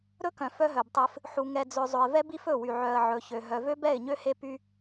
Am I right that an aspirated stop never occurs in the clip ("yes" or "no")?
yes